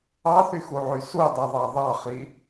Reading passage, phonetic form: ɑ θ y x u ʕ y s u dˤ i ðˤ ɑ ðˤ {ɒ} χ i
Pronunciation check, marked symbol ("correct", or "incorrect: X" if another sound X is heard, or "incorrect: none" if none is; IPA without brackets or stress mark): incorrect: ɑ